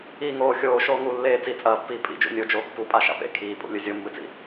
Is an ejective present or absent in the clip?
present